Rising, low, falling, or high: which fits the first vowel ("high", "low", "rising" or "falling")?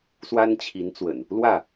high